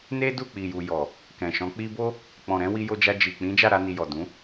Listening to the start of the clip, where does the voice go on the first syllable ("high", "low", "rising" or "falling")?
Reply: high